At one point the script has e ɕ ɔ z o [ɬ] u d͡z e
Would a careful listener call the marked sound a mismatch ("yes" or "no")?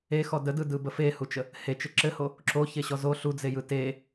no